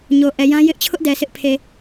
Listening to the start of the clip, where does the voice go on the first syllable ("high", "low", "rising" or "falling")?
low